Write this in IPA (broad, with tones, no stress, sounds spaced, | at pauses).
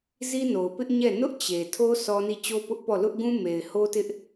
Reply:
z i˦ n o˨ ʊ̯ p ɪ˦ ʔ ɲ ɛ˦˨ n ʊ˦ ʔ t͡ɕ e˨ tʰ o˦ s ɔ˦ n i˦˨ t͡ɕ o˦ p ʊ˦ ʔ p ɔ˦˨ l ʊ˦ ʔ ɡ ũ˦ m e˨ ɪ̯ h o˦ t ɪ˦ ʔ